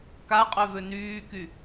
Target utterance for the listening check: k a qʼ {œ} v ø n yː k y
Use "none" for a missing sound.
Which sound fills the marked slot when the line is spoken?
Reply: œ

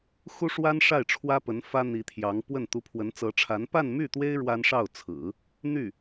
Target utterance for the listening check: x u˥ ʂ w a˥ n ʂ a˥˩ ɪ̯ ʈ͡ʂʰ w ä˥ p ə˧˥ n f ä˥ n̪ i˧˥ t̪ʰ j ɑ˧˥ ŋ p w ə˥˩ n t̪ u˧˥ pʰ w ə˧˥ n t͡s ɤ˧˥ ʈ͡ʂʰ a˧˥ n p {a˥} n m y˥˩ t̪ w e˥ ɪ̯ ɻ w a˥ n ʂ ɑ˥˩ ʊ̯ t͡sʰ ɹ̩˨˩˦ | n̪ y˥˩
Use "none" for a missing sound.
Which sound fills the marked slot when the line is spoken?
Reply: a˥˧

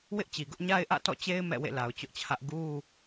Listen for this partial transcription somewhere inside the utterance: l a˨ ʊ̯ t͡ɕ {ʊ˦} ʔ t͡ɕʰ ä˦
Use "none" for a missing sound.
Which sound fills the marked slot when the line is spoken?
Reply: ʊ˦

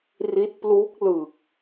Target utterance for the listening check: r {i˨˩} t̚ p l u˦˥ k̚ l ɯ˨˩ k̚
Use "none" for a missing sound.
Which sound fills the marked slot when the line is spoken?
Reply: i˦˥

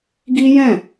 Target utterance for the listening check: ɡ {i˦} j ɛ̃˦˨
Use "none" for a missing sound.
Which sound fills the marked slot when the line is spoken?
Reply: i˦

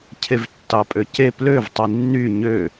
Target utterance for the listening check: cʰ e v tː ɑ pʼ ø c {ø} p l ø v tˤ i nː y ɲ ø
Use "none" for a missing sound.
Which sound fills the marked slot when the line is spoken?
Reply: e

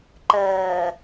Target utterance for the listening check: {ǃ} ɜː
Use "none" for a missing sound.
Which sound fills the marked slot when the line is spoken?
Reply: ǃ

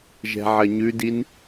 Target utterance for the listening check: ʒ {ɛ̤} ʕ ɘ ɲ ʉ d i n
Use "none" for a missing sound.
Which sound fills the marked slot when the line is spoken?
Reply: ɛ̤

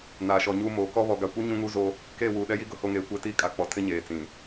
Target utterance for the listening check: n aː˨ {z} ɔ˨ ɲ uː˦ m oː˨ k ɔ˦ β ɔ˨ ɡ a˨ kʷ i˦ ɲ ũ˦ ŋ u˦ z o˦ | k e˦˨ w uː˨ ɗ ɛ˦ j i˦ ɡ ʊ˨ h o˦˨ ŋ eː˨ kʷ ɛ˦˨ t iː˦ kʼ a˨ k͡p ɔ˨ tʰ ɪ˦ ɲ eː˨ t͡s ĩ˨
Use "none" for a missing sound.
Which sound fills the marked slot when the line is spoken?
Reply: ʃ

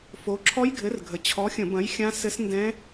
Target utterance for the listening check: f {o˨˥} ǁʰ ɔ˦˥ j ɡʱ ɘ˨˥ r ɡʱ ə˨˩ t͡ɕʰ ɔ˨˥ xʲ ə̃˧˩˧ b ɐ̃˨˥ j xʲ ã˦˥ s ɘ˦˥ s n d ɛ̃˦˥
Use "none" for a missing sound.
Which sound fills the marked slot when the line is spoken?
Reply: o˨˥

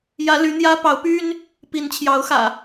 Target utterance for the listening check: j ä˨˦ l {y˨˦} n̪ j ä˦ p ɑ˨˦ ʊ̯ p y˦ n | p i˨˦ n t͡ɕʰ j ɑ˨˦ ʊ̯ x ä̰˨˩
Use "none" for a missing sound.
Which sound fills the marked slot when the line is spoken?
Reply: y˨˦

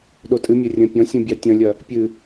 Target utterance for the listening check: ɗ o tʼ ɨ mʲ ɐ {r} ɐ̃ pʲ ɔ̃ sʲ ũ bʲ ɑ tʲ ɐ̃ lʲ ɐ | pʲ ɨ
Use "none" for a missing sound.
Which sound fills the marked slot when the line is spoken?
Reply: rʲ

